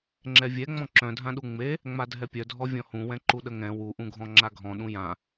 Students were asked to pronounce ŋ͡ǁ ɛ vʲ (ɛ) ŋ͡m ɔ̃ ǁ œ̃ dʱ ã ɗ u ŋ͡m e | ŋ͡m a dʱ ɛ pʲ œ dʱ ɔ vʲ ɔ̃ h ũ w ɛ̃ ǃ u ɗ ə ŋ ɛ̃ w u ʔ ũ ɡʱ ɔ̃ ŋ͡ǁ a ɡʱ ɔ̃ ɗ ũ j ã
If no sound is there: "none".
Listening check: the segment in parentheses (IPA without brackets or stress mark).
ɛ